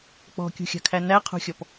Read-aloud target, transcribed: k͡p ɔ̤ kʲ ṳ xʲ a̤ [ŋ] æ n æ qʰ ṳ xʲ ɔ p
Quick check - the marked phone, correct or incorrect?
incorrect